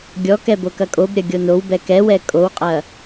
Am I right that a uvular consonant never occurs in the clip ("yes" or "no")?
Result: no